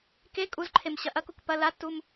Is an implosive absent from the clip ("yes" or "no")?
yes